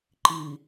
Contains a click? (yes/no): yes